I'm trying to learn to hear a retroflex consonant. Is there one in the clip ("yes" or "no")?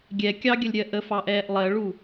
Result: yes